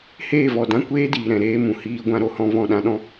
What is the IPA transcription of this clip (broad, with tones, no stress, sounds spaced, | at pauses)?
h eː˦˨ v ɔ˨ d ã˦ kʷ eː˦ d iː˨ ɾ ɛ̃˨ ɾ eː˧ m ũ˨ h iː˧ ɡʷ ã˧ ɾ o˨ h ɔ̃˧ v ɔ̃˦˨ ɗ ã˦ ɗ ɔ̃˦